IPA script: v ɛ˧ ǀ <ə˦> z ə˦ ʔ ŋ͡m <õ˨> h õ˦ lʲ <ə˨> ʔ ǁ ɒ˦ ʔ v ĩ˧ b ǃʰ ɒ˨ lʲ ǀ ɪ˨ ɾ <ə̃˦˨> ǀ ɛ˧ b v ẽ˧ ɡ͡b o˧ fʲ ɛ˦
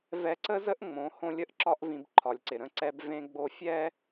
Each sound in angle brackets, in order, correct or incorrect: correct, incorrect: õ˨˦, incorrect: ə˦, correct

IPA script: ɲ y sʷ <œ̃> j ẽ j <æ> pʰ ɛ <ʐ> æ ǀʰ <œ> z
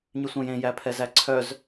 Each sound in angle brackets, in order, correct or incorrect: correct, correct, incorrect: z, correct

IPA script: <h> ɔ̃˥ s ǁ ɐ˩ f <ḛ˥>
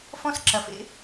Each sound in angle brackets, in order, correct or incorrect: incorrect: f, correct

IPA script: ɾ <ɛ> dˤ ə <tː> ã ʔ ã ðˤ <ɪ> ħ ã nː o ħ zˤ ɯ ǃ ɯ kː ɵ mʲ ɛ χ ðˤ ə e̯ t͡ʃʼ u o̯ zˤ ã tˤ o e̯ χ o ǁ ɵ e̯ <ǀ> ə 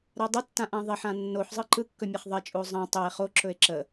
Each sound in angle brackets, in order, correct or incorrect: incorrect: ɜ, correct, correct, incorrect: ǁ

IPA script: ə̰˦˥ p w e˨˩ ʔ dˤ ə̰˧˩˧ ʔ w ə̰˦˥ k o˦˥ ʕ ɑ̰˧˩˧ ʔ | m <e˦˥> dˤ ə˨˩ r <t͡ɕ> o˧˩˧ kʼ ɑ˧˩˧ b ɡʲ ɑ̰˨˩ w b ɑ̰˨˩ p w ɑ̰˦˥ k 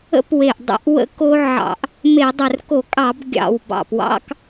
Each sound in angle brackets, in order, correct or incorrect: incorrect: e˧˩˧, incorrect: k

